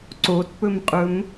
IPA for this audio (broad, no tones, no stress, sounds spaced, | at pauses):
ǀ o t p ɵ m qʼ ɵ m